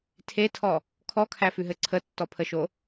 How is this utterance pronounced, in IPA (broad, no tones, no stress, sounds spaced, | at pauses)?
tʰ e tʰ ɔ | kʰ ɔ kʰ æ f ʉ ɦ ɘ ǀʰ ə tː ɔ pʰ ə ʃ o